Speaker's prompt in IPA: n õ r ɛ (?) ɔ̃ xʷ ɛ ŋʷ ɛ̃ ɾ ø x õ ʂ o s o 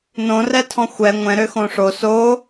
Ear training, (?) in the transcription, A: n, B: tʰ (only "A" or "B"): B